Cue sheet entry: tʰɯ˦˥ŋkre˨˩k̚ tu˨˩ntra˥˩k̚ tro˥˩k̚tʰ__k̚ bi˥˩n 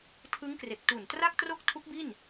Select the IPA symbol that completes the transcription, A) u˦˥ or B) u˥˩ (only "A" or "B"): A